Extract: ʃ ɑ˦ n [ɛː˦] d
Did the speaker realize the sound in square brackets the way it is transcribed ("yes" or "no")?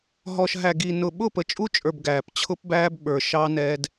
yes